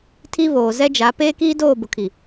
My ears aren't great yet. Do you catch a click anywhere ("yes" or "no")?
no